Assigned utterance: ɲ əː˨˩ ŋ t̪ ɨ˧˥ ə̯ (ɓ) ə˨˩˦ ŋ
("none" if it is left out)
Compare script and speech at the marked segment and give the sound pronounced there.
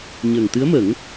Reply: m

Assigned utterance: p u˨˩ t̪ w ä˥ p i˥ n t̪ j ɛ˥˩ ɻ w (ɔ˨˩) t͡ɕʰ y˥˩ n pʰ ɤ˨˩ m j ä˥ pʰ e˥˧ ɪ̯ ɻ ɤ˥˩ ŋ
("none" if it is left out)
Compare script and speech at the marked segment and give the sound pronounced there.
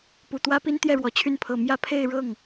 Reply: ɔ˨˩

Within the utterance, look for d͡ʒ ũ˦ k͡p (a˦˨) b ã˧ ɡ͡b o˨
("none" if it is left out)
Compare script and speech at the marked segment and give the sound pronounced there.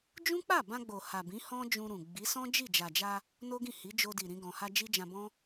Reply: a˦˨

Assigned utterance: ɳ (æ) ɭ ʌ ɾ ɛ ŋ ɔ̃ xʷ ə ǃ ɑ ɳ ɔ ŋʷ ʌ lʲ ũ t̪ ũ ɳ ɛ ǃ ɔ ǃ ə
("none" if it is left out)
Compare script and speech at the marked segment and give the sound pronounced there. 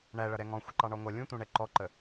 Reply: æ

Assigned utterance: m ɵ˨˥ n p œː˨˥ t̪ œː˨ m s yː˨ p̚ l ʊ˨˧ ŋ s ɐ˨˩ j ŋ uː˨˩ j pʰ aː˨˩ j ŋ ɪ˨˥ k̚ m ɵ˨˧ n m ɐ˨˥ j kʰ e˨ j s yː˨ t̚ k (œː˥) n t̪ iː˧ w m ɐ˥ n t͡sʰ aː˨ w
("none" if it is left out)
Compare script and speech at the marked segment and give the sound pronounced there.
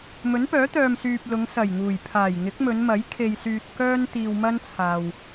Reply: œː˥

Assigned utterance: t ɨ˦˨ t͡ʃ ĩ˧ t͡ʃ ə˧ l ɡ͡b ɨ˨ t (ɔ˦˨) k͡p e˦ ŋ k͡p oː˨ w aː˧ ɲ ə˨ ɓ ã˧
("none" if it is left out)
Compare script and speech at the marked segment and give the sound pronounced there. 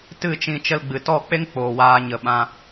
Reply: ɔ˦˨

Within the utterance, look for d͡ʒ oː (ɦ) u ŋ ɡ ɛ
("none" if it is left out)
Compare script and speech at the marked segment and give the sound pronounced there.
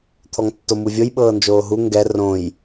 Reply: ɦ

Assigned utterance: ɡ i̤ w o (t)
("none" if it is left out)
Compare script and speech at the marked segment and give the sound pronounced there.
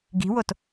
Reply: t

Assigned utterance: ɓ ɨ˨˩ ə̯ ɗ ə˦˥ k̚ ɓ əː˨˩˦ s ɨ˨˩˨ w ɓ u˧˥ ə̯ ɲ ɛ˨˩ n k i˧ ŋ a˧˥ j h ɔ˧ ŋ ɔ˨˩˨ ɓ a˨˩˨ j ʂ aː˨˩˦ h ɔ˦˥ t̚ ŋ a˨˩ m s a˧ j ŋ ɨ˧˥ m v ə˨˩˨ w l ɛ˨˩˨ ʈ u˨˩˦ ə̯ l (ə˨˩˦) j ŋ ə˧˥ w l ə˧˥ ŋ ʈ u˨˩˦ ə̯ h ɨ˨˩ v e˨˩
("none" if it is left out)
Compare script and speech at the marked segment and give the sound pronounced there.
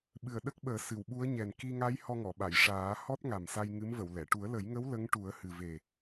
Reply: ə˨˩˦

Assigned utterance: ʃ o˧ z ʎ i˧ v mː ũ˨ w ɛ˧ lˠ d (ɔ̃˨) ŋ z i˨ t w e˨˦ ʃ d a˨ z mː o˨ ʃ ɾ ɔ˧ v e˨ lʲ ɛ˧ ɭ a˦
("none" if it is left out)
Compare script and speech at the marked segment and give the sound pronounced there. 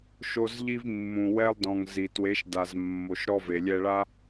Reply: ɔ̃˨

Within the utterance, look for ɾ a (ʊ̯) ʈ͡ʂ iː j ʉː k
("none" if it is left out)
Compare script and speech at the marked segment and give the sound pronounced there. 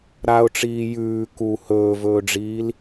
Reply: ʊ̯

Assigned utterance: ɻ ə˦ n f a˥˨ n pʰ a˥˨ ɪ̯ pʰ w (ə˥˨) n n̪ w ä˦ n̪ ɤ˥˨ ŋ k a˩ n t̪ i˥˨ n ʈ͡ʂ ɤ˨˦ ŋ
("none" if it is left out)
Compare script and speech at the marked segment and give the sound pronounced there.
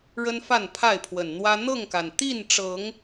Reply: ə˨˩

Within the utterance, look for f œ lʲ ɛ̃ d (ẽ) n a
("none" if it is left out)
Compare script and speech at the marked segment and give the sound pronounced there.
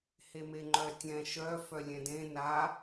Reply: ẽ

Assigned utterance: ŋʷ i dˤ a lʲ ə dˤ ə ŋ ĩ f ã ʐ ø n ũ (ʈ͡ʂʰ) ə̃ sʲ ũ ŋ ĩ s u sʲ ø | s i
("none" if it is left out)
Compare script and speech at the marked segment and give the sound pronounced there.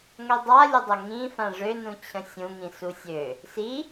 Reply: t͡ɕʰ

